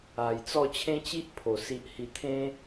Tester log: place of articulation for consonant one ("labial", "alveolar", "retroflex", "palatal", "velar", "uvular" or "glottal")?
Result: palatal